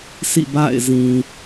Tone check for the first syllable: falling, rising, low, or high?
falling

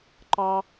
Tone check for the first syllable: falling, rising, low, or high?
high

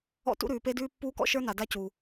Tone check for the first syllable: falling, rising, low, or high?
high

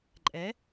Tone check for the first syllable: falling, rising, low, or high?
rising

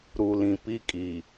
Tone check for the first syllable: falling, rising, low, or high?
low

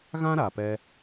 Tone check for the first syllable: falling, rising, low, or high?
high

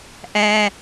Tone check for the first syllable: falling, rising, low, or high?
high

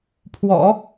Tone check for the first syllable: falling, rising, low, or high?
low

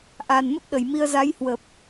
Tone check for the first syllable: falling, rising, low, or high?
low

